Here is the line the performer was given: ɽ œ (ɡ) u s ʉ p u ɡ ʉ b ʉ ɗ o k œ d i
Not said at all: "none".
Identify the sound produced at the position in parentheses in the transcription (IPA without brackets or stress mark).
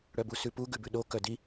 b